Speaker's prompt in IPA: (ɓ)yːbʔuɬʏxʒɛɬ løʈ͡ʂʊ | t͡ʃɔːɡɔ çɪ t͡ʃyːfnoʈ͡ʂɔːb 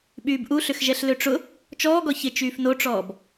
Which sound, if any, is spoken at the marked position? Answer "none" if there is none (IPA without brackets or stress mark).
ɓ